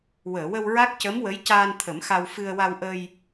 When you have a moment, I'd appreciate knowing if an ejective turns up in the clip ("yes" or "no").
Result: no